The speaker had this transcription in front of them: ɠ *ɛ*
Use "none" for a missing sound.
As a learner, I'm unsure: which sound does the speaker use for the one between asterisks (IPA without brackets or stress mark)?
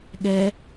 ɛ